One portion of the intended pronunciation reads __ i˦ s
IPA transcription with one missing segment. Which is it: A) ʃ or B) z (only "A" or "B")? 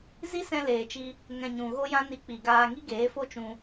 B